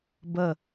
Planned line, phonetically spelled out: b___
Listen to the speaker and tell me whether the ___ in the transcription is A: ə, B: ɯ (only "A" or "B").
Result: A